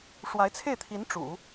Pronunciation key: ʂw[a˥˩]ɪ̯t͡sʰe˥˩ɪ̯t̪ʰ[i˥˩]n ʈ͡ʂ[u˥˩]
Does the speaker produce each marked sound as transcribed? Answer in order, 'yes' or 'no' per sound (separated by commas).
no, no, no